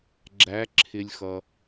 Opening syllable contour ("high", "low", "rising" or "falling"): rising